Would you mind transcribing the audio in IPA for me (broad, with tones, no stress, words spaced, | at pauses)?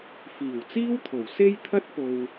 fiː˨˩wt͡siː˥wt̪ʰo˨˩w se˧jt̪ʰɐ˧t̚po˨w